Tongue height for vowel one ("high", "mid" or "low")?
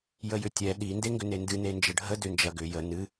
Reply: mid